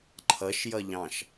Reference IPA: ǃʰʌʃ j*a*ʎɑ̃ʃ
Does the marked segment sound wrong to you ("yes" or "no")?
yes